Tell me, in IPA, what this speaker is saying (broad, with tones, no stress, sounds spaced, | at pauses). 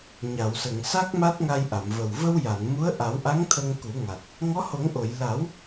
ɲ a˨˩˨ w s ə˨˩˨ ŋ s a˦˥ k̚ m a˦˥ t̚ ŋ a˧ j ʔ a˨˩˨ m v ə˨˩ w v ə˧ w j a˨˩˨ n m u˧˥ ə̯ ʔ a˨˩˦ w ʔ a˧˥ ŋ t̪ʰ ə˧ ŋ k u˨˩˦ ŋ a˨˩ t̚ | ŋ ɔ˧˥ h o˨˩˦ ŋ ʔ o˨˩˨ j l a˨˩˦ w